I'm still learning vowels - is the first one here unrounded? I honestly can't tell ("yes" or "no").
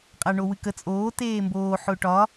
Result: yes